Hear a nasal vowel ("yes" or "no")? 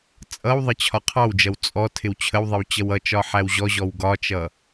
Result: no